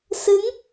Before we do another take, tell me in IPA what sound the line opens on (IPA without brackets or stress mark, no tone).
s